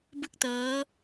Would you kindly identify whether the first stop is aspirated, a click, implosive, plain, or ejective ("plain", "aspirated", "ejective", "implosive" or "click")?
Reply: plain